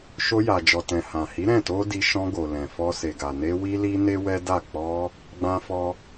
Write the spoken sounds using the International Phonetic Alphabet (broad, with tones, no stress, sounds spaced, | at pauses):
ʃ o˧ j a˨ d͡ʒ ɔ˨ t ɛ̃˨ h ã˨ h i˨˦ ɾ ɛ̃˦˨ t o˧ d i˧ ʃ ɔ̃˧ ɡ o˨ l ɛ̃˨ f ɔ˧ s e˨ ɡ a˨ n e˧ w i˦ l i˦ n e˦ w ɛ˦ d a˦˨ k͡p ɔ˧ | ɡ͡b ã˦ f ɔ˦